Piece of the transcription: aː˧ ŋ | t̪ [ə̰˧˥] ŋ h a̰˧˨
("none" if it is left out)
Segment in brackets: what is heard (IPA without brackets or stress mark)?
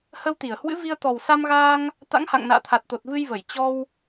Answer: a̰˧˥